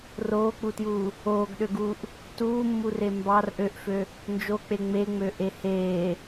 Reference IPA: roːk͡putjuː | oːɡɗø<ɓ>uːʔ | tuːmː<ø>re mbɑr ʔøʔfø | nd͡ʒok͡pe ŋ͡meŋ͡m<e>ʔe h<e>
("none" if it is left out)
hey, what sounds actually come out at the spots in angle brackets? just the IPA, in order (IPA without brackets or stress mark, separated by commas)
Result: ɡ, u, ø, eː